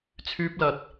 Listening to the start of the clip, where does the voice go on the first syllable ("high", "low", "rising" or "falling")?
high